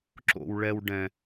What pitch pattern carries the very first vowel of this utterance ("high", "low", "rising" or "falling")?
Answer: low